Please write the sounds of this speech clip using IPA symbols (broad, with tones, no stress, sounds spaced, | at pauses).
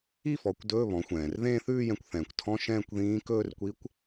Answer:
i˥˧ f ɔ˩˧ kʷ d ɵː˧˥˧ β ɔ̃˩˧ xʷ ɛ̃ː˩ r ð ẽː˥˧ θ ʉː˥˧ j ɛ̃˧ kʷ θ ɛ̃ː˩ kʷ tʰ ɔ̃˧˥˧ ʃ ɛ̃ː˥˧ kʷ ð ĩː˧˥ k ɵː˥˧ r kʷ i˧˥ kʷ